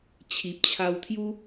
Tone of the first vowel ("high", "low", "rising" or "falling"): low